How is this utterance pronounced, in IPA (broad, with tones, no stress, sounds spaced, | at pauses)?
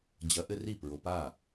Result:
d͡ʑ ɐ˨˥ ʔ ɘ˦ r i˥˩ p ɹ o˨˥ p a˥˩